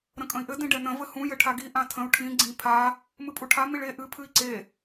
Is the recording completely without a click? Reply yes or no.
no